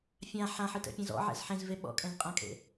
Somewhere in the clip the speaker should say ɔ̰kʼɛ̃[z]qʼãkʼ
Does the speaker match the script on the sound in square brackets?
yes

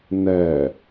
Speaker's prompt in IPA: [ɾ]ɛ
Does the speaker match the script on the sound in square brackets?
no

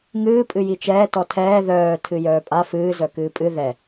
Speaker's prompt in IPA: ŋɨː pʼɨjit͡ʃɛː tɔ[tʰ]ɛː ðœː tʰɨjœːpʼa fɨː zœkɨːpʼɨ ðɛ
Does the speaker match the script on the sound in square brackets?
yes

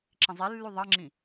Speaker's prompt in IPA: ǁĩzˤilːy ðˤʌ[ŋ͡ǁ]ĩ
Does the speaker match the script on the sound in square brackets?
yes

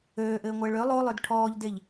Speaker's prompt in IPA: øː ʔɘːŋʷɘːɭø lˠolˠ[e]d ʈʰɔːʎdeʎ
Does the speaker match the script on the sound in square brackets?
no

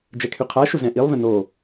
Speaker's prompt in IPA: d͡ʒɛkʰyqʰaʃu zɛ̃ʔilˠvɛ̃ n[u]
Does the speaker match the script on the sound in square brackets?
no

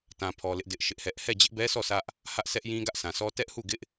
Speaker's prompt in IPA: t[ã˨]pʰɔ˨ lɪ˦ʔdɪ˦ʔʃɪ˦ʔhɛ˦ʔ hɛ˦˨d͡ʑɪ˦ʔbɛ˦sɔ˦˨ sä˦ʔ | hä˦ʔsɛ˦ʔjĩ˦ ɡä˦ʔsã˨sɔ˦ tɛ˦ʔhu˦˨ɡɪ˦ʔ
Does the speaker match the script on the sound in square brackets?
yes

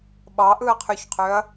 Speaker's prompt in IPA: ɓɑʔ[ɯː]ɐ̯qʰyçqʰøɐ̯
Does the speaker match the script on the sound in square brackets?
no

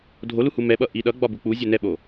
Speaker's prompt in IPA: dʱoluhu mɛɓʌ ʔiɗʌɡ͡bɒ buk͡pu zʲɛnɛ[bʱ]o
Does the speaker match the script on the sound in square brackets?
no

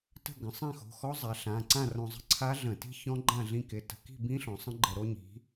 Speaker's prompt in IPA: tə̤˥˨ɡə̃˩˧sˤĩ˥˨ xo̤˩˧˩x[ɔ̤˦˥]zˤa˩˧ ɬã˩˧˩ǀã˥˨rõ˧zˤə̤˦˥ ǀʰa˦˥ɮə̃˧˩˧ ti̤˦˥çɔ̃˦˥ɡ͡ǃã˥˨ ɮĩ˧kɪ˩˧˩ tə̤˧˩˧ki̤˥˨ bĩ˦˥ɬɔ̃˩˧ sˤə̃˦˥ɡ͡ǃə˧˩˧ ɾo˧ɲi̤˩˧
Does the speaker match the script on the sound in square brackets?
no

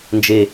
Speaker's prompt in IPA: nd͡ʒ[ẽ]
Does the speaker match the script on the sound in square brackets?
no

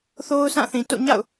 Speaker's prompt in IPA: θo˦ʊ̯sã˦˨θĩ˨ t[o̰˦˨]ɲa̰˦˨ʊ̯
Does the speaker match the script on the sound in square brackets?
yes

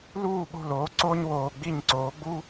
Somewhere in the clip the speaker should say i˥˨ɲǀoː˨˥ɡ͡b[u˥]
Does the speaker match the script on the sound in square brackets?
yes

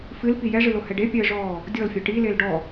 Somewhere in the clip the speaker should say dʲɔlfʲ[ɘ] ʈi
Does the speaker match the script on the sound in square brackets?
yes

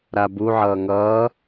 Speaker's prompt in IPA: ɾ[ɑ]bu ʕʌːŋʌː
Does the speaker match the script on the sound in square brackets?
no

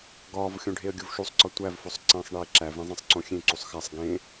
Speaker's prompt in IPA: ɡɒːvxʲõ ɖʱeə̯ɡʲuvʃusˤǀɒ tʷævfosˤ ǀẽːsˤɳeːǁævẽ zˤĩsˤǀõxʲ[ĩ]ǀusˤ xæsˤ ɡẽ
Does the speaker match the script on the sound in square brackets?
no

